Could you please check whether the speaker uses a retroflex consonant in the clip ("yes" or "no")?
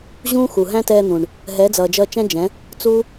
yes